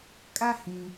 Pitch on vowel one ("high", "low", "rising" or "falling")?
high